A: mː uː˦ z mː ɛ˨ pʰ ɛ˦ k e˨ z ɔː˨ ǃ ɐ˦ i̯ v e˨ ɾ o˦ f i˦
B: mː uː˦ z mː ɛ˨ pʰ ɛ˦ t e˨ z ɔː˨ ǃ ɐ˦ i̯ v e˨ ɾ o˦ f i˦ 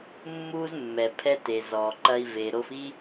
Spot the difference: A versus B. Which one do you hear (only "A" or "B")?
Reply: B